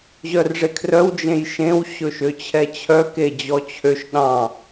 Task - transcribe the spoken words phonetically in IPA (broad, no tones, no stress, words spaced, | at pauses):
ʑœrʐekʰrœw d͡ʒẽjʃẽw ɕɵʃøt͡ɕʰɛt͡ɕʰœ ked͡ʑɔt͡ɕʰøʃ ɗɑ̃